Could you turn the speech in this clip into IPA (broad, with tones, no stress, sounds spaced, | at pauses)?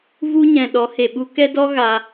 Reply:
v u˦ ɲ ɛ̃˨ ɗ ɔ˨˦ h e˨ ɓ u˦ k ɛ˦ d ɔ˦ ɣ a˧